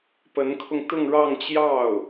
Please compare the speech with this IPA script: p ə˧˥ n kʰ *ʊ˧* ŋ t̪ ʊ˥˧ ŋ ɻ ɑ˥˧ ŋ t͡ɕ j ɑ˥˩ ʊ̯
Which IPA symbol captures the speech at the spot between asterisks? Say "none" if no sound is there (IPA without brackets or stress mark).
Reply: ʊ˧